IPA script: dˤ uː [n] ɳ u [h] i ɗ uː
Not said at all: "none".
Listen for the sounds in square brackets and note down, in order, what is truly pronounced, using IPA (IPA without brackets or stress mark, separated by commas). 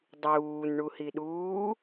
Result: n, h